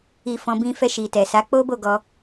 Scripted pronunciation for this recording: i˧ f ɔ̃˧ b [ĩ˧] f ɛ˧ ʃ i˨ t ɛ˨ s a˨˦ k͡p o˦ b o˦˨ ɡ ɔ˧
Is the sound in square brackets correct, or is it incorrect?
correct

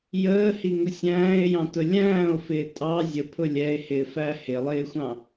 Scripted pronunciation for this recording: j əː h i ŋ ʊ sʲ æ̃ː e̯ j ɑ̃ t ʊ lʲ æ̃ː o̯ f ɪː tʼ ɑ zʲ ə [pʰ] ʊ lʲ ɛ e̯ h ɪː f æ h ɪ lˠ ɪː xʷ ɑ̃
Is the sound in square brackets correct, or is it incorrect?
correct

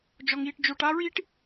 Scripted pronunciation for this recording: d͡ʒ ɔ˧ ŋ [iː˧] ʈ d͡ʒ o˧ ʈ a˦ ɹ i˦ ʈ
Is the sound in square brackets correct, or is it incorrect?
correct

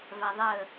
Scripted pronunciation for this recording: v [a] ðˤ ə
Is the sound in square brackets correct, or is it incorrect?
correct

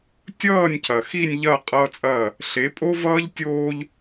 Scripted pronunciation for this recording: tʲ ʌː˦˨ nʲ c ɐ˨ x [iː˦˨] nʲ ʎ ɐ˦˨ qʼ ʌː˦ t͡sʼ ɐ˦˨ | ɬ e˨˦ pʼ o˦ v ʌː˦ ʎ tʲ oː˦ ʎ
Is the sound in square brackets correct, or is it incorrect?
incorrect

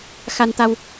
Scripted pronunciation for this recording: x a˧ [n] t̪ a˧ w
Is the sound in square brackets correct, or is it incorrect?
correct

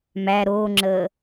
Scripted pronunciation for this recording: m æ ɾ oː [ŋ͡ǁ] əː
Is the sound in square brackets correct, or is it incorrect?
correct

